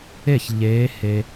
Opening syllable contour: falling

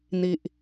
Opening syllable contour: low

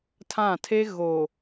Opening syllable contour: falling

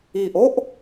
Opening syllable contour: low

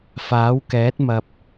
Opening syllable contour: rising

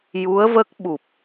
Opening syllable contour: rising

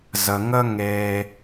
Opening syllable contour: low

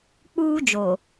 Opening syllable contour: high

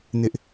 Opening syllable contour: high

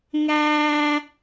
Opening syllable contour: high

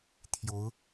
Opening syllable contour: rising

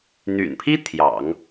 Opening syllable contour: low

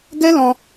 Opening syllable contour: high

